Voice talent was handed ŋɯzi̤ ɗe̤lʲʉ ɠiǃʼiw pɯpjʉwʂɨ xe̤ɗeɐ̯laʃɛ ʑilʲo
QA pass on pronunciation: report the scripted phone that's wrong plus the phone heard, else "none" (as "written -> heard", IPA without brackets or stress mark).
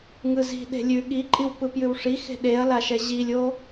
ɨ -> i